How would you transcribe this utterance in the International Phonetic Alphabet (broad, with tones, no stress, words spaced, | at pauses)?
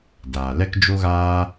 daː˨lɛ˦kd͡ʒo˦ɣaː˦